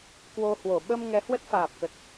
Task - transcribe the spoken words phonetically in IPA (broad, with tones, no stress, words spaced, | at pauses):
kwo˧hwo˧˩ ɓə˧m ŋɛ˨˦hwə˦˥t̚faː˨˩p̚kə˨˩t̚